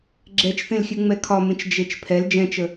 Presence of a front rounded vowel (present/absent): absent